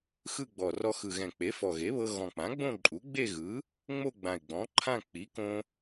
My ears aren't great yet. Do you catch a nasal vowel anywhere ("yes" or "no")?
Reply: yes